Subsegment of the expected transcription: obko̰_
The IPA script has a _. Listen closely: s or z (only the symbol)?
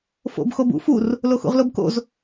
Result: z